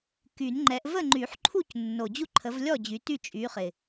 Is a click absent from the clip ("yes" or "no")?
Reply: no